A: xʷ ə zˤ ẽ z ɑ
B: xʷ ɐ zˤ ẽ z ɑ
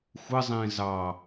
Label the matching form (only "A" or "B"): A